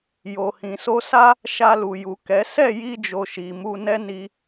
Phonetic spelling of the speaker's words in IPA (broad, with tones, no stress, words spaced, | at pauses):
jo˨hĩ˨so˧sa˦ | ʃa˧lu˨ju˨ kɛ˨˦ sɛ˦˨ji˧d͡ʒo˨ ʃi˨mu˧ nɛ˦ni˧